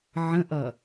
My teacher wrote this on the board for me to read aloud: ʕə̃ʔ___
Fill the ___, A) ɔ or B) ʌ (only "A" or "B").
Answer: B